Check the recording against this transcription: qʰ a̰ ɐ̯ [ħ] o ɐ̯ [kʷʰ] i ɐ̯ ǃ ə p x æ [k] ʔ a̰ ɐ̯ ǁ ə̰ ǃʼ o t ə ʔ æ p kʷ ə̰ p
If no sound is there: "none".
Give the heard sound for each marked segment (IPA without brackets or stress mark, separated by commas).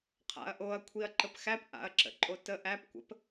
ʔ, kʷʰ, p